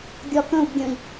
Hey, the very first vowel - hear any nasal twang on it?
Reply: no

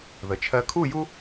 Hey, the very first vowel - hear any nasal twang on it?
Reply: no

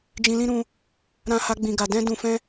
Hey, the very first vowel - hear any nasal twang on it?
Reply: yes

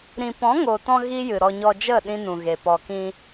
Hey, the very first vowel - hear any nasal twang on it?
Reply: yes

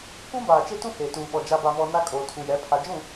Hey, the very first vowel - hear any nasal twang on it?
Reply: yes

